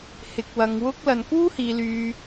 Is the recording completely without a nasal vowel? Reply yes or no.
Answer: yes